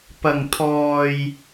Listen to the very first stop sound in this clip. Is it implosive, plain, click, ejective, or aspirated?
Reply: plain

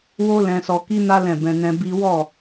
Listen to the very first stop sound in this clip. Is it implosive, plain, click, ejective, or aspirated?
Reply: plain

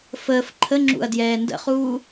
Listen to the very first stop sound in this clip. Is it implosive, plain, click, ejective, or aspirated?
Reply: click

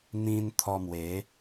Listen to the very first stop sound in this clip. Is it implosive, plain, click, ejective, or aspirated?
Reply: aspirated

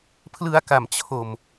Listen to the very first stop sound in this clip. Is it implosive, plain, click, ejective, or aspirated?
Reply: aspirated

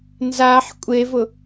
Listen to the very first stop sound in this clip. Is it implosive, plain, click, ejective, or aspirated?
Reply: ejective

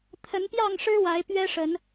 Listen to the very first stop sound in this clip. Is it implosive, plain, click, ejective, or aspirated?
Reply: aspirated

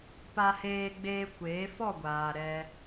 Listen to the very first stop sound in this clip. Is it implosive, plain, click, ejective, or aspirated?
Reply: plain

